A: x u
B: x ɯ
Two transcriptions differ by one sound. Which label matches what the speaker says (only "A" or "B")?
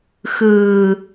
B